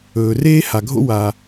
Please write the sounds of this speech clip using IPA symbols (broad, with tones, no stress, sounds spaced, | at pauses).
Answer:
ɵː˩ r eː˥ h a˩ ɡʱ o̰˥ w a˩